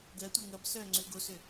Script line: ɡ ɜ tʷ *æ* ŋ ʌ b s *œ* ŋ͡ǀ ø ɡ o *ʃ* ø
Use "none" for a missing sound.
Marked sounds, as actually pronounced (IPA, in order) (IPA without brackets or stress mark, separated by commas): ə, œ, s